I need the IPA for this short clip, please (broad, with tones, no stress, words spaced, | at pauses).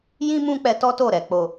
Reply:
jĩ˦ mũ˦k͡pɛ˧tɔ˦ to˦˨ɾɛ˨ k͡po˨